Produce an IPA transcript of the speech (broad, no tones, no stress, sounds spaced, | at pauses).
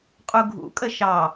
qʼ u ɡʱ ṵ kʼ ə ʃ ɑ